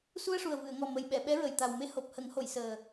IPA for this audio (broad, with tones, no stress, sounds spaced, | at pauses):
s u˧ ə̯ ʂ u˨˩ ə̯ v ɨ˨˩˨ ə̯ ŋ ɔ˨˩ m ə˨˩ j ɓ ɛ˨˩˨ ɓ ɛ˧˥ ɹ ə˨˩ j t̪ a˨˩ w m e˧˥ h o˨˩ p̚ h ə˨˩˦ ŋ h o˨˩˨ j s əː˨˩